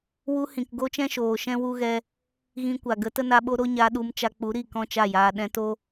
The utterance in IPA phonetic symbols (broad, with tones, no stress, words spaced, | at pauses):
wu˧hĩ˨k ɡo˦t͡ʃɛ̃˦ʃoː˨ʃɛ̃˦ wu˦ɣɛ˦ | ɣĩ˧kʷa˨ ɡə˨˦tə˦na˧ɓo˦ ɾo˦ɲa˧ɗu˧m t͡ʃa˧k͡pu˨˦ɾi˦˨ kɔ̃˦t͡ʃa˦˨jaː˧ ɗɛ̃˧to˦